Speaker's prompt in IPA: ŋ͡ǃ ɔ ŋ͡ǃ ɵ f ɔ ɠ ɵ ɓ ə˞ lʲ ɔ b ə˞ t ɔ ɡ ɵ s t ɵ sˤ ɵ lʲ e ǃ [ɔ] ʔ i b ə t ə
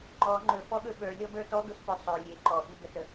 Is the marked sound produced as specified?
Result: yes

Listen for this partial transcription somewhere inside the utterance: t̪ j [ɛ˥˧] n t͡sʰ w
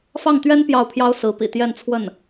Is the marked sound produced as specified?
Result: yes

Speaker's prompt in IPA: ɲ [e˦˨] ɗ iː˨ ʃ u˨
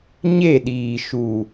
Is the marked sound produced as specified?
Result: yes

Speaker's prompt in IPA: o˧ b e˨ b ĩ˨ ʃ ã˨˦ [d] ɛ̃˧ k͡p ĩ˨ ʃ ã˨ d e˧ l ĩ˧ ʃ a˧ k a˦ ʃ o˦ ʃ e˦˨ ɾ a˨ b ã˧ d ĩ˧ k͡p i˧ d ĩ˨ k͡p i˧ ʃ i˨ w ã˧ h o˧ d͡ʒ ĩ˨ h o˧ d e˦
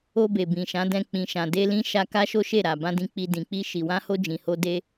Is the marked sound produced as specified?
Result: yes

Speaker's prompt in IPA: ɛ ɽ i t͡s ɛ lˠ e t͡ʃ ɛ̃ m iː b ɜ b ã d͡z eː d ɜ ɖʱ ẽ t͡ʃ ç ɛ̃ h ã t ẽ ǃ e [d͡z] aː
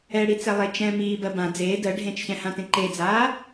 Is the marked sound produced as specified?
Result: yes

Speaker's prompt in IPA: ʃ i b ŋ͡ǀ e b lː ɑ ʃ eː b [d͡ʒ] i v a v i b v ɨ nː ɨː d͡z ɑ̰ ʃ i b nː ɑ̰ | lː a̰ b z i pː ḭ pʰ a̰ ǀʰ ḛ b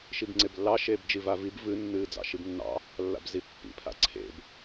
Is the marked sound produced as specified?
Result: yes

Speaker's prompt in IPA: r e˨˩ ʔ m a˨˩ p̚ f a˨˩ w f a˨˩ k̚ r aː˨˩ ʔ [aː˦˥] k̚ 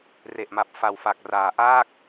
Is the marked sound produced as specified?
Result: no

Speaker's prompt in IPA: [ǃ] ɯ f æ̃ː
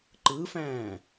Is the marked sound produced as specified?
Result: yes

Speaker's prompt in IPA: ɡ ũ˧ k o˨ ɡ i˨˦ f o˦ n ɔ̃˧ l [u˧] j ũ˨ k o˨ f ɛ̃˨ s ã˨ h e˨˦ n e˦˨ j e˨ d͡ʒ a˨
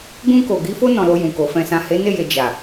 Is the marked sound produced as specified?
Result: no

